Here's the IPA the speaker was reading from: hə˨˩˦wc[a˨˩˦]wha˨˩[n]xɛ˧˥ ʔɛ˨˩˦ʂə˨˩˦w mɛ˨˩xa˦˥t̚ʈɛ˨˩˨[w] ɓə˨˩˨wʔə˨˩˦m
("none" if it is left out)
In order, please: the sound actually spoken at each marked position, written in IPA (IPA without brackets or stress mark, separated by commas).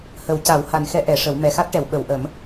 a˨˩˦, n, w